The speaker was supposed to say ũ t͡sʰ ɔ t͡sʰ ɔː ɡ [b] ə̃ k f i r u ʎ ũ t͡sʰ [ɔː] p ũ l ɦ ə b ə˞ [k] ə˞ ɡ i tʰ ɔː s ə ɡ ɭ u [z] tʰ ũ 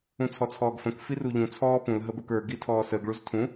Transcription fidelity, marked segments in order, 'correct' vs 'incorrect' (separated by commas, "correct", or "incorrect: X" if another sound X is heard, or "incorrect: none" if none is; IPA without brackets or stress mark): incorrect: f, correct, correct, correct